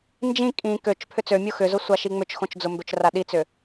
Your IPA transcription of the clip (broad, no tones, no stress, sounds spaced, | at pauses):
n d͡ʒ ĩ kʼ ĩ k ø t͡ʃ pʰ ʏ t͡s ø mʲ o x ʏ z ʊ sʷ a ʃ i ŋ͡m ʏ t͡ʃ x õ t͡ʃ d͡z ʊ m b ø t͡ʃ r a ɗ i t͡s ʏ